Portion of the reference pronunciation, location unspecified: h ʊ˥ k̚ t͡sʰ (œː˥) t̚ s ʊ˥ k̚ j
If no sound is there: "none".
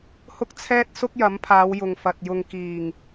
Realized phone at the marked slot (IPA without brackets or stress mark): ɛː˥